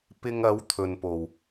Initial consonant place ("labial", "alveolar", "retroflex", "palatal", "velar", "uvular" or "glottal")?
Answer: labial